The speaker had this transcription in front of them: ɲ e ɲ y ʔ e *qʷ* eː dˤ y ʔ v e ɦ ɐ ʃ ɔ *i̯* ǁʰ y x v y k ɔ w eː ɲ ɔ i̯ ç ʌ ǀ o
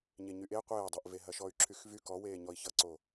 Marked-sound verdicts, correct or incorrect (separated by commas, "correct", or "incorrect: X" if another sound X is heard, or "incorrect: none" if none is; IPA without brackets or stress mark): correct, incorrect: y̯